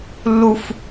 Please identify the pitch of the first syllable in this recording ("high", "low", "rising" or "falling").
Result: low